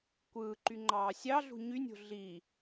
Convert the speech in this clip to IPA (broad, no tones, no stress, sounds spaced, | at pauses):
kʷ ɯː ǃ y ŋ͡ǃ ɑː sʲ ɑ ɮ ṳ ɲ y nʲ o̤ ɮ i